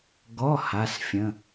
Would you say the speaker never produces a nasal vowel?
no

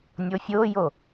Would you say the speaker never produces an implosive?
yes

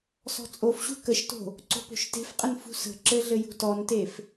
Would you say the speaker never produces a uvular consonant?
no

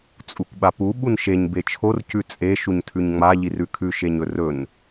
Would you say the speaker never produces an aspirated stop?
no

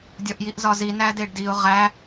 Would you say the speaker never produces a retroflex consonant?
no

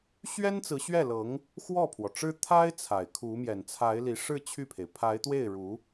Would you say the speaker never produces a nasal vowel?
yes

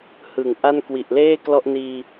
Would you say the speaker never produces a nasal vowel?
yes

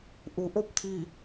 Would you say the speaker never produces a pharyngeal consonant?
yes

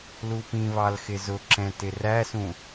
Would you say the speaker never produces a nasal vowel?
no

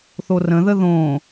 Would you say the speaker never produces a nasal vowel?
no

